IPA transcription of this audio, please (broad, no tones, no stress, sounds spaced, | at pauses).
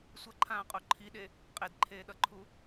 sʷ ʌ ǃʰ ãː qʼ o ǃʰ i ɗ e | qʼ e d ǃʰ eː ɗ ʌ ǃʰ u